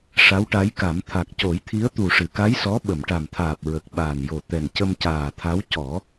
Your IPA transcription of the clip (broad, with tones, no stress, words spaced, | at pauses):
ʂa˧˥wʈa˧˥jka˨˩˦m t̪ʰa˨˩k̚co˨˩˦jt̪ʰi˧˥ə̯ t̪u˨˩ʂɨ˨˩˨ka˧˥j sɔ˧˥ ɓə˨˩˨mʈa˨˩mt̪ʰaː˨˩p̚ ɹə˨˩k̚ɓaː˨˩njo˨˩ t̪ɛ˨˩ncə˧mcaː˨˩t̪ʰa˧˥w cɔ˨˩˦